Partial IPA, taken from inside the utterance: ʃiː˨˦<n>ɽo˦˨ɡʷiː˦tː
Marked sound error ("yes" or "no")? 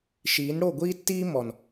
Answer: no